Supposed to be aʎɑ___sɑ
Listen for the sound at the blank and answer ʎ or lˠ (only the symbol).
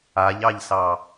ʎ